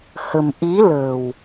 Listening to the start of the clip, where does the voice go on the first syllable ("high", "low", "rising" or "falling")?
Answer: low